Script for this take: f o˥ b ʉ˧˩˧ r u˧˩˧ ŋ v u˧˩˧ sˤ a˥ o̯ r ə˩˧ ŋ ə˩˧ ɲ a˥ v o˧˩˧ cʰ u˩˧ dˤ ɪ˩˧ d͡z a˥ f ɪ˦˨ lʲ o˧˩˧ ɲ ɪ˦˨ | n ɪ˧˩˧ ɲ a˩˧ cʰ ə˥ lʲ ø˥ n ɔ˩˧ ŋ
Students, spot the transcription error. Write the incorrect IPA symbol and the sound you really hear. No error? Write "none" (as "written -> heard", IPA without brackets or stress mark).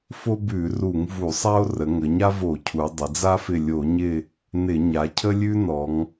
ø˥ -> ʉ˥